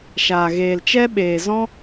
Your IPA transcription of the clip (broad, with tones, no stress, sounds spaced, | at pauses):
ʃ aː˨ ɣ eː˨ l t͡ʃ ɛ˦ ɓ eː˨ z ɔ̃˦